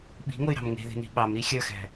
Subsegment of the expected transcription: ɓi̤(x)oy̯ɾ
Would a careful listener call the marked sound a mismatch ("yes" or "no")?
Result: yes